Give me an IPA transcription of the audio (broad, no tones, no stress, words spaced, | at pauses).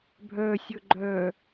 bʱœsʲɵ ɡ͡ǃœ